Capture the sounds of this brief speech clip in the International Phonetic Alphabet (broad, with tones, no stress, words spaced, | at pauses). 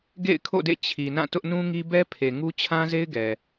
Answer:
ɡḛ˦˨ɪ̯kʰo̰˦˨dḛ˦˨ t͡ɕʰi˨nã˦˨ tʊ˦ʔnũ˦ŋi˦ bɛ˦pʰe˨ŋu˦ t͡ɕʰã˦ze˦ɪ̯ɡɛ˨